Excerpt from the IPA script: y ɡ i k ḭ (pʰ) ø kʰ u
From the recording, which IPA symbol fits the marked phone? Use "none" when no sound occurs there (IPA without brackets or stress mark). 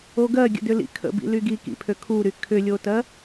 pʰ